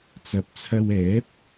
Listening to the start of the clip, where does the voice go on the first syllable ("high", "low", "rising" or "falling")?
rising